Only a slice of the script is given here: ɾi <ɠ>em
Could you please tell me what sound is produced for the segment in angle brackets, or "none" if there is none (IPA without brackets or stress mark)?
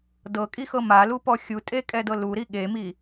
ɠ